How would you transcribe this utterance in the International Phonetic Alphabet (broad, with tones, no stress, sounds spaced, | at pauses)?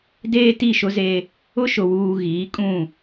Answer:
d eː˦ t i˦˨ ʃ ʊ˦ z e˦ | ʊ˦ ʃ ʊ˨ w uː˨ ɣ iː˨˦ kʼ ũ˦˨